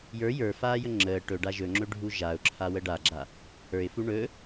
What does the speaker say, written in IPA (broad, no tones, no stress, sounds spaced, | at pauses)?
j ə˞ j ə˞ f aː j ə ŋ͡ǁ əː ʈ ɵ ɖ a ʒ ɵ ŋ͡ǁ ɵ ɖʱ u ʒ a ʊ̯ ǁʰ a w ə ɖ a ɡ͡ǁ a | h ə˞ ɪ̯ f u ɳ ɵ